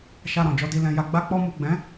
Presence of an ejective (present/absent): absent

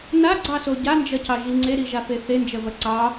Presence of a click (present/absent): present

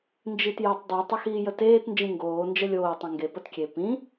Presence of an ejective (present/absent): absent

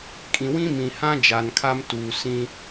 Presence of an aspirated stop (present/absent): present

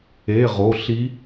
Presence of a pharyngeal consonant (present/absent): absent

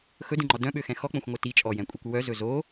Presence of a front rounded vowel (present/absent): present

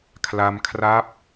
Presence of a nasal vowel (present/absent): absent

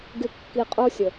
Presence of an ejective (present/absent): present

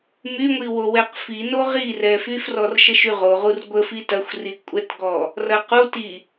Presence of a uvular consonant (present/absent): present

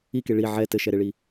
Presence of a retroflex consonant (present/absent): present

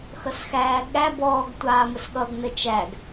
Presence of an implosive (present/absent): present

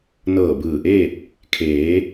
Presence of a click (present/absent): absent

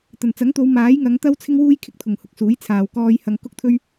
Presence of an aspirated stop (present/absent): present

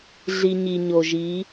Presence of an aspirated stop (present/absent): absent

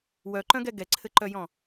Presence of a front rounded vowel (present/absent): present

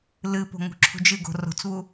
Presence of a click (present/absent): present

